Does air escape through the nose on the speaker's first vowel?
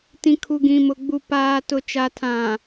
yes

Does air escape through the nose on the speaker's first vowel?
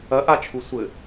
no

